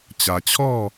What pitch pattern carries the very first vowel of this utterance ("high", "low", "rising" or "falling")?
low